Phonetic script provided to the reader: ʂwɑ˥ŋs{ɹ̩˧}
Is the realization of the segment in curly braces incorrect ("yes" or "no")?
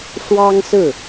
yes